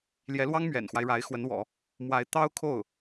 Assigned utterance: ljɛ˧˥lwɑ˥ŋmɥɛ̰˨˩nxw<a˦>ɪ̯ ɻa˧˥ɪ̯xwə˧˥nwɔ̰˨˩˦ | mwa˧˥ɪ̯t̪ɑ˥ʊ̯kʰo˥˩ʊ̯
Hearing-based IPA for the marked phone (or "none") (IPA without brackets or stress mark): a˦